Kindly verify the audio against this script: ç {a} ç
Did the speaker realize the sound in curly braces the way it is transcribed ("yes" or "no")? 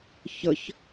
no